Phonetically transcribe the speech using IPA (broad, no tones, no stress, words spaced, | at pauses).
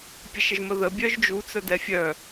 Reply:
pʲəʃəʒməðə bʲœʒd͡ʒu t͡sœdɛfʲœ